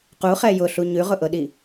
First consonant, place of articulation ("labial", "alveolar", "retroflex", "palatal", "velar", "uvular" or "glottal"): uvular